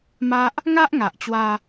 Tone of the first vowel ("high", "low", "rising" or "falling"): high